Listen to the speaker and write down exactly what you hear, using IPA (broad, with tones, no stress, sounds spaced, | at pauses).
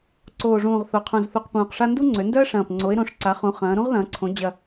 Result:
ǀ oː˨˩ ʐ ũː˨˩ ʁ θ o˩˧ qʰ ũ˨˩ z θ u˨˩ q p ũː˨˩ q ʂ a˥ n d u˥ ŋ͡ǀ ø˩˧ n d œ˥ ə̯ ʂ ɐ̃ː˨˩ p ŋ͡ǀ o˩˧ ɪ̯ ɾ õ˩˧ ʂ ǀ a˩˧ χ ũ˩˧ χ ɐ̃ː˩˧ ɾ ũ˥ ʁ ð ɐ̃ː˩˧ ǀʰ õ˩˧ d͡ʑ ɐ˨˩